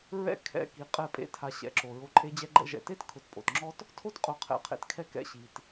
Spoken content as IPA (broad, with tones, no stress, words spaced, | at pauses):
ɹɛ̰˦ kʰɛ̰˧ ki˨ qʼɛ˦˨pʼḛ˧ tʰa˨ ɕɛ̰˨˦ǁo˨ɹo˧ ǃʼe˧d͡ʑɛ˧ɡ͡ǃɛ̰˧ʒɛ̰˨ te˦t kʰʊ˨˦tpʼo̰˨tŋ͡ǁɔ˦t | tʰo˦tqʼʊ˨˦ qʰɛ̰˨qʰḛ˨tkʰɛ˧ kɛ̰˧ɕi˨t